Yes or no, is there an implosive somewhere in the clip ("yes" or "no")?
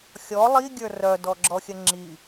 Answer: no